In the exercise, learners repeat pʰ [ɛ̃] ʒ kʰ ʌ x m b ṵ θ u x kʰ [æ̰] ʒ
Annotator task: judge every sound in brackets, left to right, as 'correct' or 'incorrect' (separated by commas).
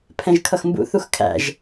correct, correct